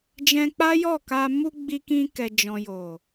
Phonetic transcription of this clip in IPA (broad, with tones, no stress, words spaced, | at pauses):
d͡ʒɛ̃˧k͡pa˦ jɔ˦˨ka˧ mu˧ ɡ͡bi˧kĩ˧kɛ˨ d͡ʒɔ̃˨jo˨